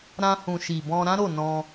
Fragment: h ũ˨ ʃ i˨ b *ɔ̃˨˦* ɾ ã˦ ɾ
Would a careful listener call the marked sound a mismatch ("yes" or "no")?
yes